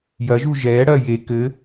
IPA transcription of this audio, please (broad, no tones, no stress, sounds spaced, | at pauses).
j ɐ ʒ u ʒ ɛː ɽ ɐː j e k ɘ